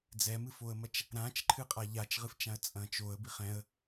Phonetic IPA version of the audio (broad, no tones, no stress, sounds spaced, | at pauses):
d͡z ɛ m ɨ f o ə̯ m ɐ t͡ʃ | ɾ ã t͡ʃ ǃʰ ɨ qʼ a ʎ a t͡ʃ ʁ ɨ f t͡ʃ ã ə̯ t͡sʼ ɐ̃ t͡ʃ o ə̯ b i χ ɛ̃ ə̯